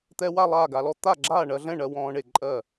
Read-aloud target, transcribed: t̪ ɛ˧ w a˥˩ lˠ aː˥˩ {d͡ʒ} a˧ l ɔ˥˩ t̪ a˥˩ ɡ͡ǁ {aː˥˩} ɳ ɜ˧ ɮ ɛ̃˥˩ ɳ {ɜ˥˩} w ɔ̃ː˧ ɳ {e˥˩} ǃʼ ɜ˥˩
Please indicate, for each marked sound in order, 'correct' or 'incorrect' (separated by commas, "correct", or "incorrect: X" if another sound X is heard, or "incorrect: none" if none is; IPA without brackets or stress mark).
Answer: incorrect: ɡ, correct, incorrect: ɜ˧, correct